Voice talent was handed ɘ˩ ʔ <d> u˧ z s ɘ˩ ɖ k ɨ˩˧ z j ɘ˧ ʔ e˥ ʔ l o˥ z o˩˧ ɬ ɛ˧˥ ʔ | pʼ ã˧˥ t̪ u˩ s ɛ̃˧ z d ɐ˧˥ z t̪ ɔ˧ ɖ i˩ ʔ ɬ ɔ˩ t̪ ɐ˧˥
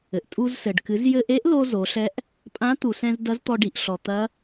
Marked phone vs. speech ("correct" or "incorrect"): incorrect